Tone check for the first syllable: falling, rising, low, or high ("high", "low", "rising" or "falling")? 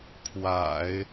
low